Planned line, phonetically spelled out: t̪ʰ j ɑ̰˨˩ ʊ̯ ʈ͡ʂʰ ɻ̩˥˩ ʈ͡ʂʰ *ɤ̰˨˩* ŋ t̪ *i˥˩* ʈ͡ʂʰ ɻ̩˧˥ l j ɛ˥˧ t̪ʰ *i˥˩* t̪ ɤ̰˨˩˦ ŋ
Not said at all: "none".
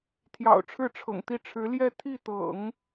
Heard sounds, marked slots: ɤ̰˨˩, i˥˩, i˥˩

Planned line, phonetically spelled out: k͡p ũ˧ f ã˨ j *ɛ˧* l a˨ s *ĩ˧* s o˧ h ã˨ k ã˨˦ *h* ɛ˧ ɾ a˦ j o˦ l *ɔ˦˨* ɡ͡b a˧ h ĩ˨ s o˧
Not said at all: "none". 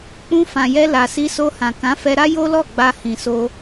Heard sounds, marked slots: ɛ˧, i˧, f, ɔ˦˨

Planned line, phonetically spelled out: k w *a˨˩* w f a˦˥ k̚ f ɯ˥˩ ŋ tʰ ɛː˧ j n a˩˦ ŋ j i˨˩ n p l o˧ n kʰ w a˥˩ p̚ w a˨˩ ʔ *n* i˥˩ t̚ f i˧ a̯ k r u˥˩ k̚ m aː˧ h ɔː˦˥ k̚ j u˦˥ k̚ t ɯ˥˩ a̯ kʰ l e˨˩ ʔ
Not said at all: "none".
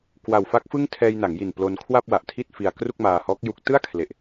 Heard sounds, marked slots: a˨˩, tʰ

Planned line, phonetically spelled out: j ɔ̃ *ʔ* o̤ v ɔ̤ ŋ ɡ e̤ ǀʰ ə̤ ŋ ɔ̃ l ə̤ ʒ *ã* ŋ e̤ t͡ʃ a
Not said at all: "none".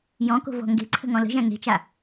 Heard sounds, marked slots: k, æ̃

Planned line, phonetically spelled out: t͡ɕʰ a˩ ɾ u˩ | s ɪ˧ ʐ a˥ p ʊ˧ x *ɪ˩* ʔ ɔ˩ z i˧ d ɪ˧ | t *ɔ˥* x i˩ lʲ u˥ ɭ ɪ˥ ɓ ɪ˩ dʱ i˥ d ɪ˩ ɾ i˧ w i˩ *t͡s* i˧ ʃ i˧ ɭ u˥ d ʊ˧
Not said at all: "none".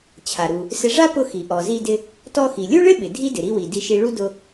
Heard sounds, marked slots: i˩, ɔ˧, d

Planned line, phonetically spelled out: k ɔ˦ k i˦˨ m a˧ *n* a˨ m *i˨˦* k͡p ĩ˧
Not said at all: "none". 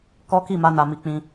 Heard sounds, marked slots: n, i˨˦

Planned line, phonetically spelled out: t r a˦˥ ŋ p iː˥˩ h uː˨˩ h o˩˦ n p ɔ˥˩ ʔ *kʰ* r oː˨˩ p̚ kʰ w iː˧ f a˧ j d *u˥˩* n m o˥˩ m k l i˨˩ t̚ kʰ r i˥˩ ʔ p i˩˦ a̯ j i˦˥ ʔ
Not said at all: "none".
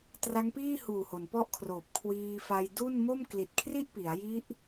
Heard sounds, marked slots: kʰ, u˥˩

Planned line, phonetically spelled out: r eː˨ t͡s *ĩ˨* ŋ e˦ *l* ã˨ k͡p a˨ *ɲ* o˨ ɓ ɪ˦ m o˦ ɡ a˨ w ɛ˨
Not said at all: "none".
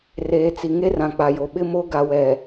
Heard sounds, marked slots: i˨, r, j

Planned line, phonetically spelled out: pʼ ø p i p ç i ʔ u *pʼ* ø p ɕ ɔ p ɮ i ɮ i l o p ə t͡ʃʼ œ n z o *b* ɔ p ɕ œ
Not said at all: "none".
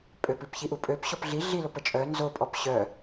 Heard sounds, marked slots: pʼ, pʼ

